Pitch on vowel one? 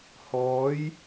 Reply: rising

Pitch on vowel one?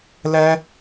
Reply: high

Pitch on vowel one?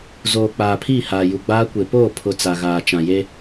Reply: low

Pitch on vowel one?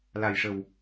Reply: low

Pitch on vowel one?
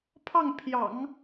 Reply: falling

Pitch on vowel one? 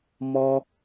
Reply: high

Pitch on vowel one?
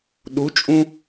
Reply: rising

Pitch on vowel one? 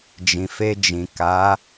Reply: low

